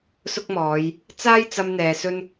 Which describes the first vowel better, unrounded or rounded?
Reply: rounded